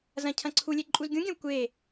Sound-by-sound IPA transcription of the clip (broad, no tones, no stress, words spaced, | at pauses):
zɐ̃cʰɐ̃ǀʰulʲe ǃʼuzɡʲũɡʲɐ̃w kʷe